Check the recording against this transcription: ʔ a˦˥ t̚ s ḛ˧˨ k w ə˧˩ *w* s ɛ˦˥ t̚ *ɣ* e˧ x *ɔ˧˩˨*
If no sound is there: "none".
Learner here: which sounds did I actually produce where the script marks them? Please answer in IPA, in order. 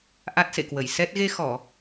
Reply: j, ɣ, ɔ˧˩˨

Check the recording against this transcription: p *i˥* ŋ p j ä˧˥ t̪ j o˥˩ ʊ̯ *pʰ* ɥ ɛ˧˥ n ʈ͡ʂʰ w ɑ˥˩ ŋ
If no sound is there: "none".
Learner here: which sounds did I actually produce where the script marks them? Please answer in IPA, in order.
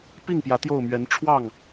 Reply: i˥˩, m

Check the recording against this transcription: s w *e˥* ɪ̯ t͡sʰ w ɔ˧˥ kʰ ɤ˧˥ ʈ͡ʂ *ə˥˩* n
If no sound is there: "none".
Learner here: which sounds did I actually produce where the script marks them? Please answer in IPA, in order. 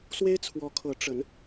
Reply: e˥, ə˧˥

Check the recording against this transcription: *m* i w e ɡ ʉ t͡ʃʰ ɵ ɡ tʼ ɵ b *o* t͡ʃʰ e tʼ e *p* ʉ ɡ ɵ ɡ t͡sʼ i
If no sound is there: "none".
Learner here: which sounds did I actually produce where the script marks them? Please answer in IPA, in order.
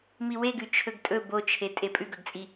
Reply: m, o, pʼ

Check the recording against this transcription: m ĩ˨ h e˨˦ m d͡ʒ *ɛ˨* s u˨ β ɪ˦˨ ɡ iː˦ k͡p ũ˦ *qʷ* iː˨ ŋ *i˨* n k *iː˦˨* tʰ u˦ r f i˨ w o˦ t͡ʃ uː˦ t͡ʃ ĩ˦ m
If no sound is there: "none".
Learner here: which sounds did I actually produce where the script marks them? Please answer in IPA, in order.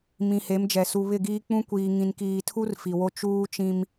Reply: ɛ˨, kʷ, ĩ˨, iː˨

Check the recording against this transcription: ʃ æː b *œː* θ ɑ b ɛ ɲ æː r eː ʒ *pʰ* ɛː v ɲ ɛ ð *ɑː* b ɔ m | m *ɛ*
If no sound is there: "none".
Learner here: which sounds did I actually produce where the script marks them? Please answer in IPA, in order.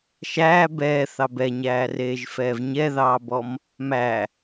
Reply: ɛː, f, ɑː, æ

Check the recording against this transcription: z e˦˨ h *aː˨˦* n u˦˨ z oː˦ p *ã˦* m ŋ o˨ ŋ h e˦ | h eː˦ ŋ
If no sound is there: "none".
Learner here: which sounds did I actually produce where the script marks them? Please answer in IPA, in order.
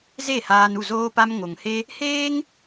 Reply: aː˧, a˦

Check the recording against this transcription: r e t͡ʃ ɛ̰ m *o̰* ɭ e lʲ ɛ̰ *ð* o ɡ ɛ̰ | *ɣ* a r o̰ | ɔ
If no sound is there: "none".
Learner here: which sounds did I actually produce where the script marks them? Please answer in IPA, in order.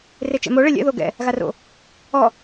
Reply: o, ð, ɣ

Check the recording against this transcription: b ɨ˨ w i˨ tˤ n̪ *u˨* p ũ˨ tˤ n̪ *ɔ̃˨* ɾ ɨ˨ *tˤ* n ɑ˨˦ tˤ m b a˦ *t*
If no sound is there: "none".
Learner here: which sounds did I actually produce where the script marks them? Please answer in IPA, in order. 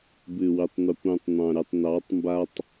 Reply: u˨, ɑ̃˨, tˤ, tˤ

